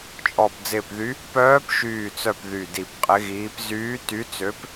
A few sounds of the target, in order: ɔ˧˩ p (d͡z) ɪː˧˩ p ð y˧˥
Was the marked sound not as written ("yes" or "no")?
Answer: no